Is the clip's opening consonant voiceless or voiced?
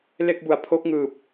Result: voiced